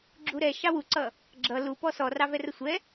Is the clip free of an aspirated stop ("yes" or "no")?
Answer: yes